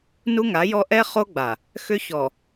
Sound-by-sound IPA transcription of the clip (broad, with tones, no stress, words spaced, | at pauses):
nu˦ŋa˨˦jɔ˦ ʔɛ˦χo˦ɡ͡ba˨ | xʏ˦ çɔ˨